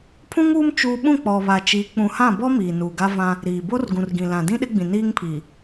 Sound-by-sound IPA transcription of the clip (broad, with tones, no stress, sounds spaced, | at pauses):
pʰ ũ˦ ŋ uː˦ m t͡ʃ uː˦ ɓ ũ˦˨ k͡p ɔ˨ β a˨ t͡ʃ i˨˦ k͡p ũ˨ h ã˦˨ b ɔ˦ m iː˨ n uː˨ ɡ a˦ v ã˦ | ɾ iː˨ b o˦ r ɡ ũ˨ r ɡ ĩ˨ l ã˨ d ĩ˦ ɗ ɪ˦ ɡ͡b ĩ˨ n iː˦ ŋ pʰ i˨